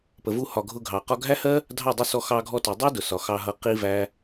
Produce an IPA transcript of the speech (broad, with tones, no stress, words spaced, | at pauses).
pə˨vu˧hɒ˨ ɡʱʊ˧ɡʱɑ˨qɒ˦ ɡʱæ˦hɜ˦ | dʱɑ˦˨dˤu˧sɔ˧ xɑ˧ɡʱɔ˧ tu˨dˤæ˦dʊ˨sɒ˨ xɑ˧ɦʌ˧ qi˦væ˦